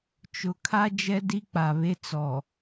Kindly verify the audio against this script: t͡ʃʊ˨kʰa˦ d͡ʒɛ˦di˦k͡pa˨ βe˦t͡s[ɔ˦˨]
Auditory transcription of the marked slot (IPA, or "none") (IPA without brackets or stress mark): ɔ˨